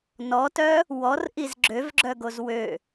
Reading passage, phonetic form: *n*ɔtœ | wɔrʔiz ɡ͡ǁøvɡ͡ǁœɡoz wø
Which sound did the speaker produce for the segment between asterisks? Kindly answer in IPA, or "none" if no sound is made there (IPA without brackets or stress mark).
n